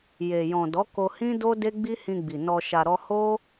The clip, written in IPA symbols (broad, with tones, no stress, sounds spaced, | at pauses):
j e˨ j ɔ̃˨ d ɔ˨˦ k o˧ h ĩ˦ d o˦ d e˦ ɡ͡b i˦ h ĩ˧ ɡ͡b i˨ n ɔ˧ ʃ a˧ ɾ ɔ˦ h o˦